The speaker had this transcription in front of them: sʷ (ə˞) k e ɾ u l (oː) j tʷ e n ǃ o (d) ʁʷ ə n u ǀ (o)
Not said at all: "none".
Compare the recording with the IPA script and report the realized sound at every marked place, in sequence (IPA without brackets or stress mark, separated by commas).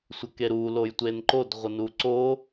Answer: ə, o, d, o